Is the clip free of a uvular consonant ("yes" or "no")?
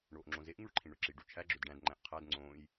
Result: no